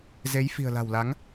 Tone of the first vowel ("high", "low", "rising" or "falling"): rising